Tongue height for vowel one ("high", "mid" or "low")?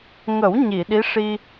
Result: mid